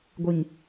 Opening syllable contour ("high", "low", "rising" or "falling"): low